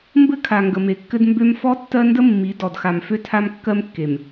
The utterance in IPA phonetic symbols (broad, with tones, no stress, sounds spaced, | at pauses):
m b ɘ˦ kʰ a˨ ŋ ɡ ə˨ m e˨ kː ɘ˦ d m b ø˦ m f ɔ˦ tː ɜ˦ n d ə˦ mː i˨˦ d ɔ˨ d x a˨ m f ø˦ tʰ a˦ m kː ɜ˦ m kː e˨ m